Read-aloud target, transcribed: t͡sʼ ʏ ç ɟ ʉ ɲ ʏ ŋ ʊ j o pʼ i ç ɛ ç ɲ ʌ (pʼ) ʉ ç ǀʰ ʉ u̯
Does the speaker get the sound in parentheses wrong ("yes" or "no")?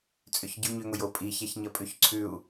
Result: no